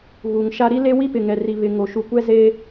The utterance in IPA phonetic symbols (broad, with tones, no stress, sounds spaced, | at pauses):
ɣ uː˨ ŋ ʃ a˦ ɾ i˦ l e˦ w i˦ p ɪ˨ ŋ ɛ˨ r i˨ β ɪ˨ ŋ o˨ ʃ u˨ kʷ ɛ˦ z eː˦